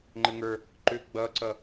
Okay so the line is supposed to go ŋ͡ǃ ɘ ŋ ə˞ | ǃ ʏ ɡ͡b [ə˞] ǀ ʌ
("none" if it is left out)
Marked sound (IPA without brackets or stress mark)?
ʌ